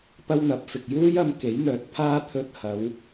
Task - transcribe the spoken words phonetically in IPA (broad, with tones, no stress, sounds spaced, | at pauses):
p ɐ˥ w n̪ ɐ˨˥ p̚ f ɪ˨ k̚ j uː˥ j ɐ˧ m k e˨˥ j n̪ œː˨˥ t̚ pʰ aː˥ t̪ʰ ɵ˧ t̚ h ɐ˨˧ w